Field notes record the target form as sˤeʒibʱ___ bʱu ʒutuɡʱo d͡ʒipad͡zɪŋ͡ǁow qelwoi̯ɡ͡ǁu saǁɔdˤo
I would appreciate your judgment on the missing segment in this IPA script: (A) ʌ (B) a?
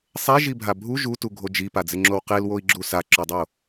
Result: B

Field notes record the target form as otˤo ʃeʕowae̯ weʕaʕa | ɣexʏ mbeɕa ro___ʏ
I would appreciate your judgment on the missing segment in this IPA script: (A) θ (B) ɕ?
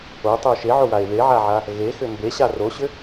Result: B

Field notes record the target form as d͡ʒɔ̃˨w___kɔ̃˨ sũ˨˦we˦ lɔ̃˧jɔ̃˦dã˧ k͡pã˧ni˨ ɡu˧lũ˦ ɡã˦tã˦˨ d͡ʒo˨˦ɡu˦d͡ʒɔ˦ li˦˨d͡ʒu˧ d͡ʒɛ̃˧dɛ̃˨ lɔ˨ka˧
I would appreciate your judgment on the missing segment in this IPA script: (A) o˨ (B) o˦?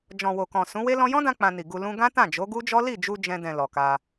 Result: A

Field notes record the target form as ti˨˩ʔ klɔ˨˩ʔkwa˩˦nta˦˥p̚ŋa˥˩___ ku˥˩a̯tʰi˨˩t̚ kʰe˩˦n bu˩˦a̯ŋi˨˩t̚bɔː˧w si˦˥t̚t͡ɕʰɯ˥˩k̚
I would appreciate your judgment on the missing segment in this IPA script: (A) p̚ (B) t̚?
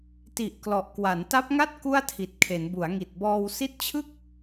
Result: B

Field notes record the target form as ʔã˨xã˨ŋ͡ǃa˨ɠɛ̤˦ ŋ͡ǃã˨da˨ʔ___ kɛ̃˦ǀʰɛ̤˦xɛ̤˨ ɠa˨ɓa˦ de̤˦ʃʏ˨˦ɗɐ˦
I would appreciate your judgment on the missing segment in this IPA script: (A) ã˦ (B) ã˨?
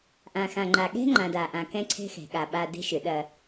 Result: B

